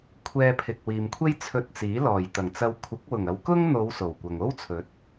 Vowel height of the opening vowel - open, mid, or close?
mid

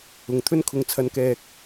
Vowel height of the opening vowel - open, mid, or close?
close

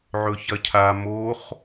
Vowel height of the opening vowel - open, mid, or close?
mid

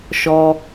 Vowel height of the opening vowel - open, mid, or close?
mid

